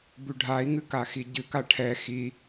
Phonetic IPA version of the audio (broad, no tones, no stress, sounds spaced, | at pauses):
b ʉ ɖʱ a i̯ ŋ ɨ k a x i ɟ ɨ k a ʈʰ ɛ x i